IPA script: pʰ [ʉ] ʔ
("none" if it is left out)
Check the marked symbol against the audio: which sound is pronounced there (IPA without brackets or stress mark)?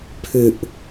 ʉ